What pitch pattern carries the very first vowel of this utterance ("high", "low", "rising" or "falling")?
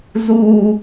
high